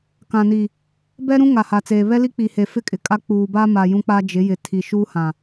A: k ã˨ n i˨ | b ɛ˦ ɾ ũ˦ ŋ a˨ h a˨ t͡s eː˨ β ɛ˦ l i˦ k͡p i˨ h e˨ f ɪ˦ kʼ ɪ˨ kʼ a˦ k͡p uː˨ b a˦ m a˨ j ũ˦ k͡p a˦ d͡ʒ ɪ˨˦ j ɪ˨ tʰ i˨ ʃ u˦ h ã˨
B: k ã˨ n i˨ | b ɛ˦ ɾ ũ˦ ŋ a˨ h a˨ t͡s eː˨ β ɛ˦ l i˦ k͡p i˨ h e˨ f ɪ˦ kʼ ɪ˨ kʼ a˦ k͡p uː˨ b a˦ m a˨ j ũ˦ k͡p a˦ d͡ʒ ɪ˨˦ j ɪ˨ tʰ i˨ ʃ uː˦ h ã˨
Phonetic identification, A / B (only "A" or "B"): B